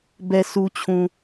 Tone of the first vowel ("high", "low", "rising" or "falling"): low